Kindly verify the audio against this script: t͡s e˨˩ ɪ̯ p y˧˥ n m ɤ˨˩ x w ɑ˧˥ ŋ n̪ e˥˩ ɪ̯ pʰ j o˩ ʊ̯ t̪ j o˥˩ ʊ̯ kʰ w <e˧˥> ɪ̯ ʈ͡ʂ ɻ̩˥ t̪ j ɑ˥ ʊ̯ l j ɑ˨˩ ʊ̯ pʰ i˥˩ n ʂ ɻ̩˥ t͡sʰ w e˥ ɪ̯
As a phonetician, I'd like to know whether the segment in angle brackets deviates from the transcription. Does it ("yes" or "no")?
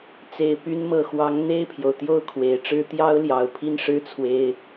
yes